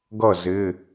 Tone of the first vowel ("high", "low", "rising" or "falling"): falling